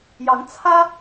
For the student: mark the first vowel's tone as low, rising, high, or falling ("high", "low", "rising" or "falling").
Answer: rising